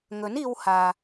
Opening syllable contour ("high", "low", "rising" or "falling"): rising